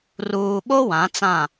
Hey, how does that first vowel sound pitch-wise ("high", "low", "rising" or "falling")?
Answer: low